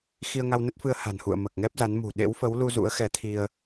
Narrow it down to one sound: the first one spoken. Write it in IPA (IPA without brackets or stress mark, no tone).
x